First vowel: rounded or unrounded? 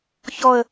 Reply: rounded